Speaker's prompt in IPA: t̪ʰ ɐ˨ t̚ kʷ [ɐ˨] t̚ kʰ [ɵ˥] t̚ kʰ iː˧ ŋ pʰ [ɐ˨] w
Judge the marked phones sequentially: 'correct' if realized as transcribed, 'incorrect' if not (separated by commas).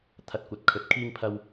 correct, incorrect, incorrect